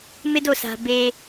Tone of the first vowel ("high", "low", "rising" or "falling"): high